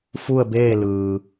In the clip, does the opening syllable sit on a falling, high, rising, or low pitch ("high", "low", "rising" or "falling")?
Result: falling